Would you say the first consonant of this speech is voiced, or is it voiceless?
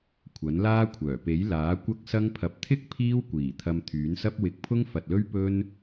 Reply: voiceless